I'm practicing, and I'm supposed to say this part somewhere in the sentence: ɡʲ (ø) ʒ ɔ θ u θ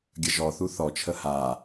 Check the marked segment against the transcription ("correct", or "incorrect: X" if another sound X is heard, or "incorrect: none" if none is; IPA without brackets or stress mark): incorrect: ə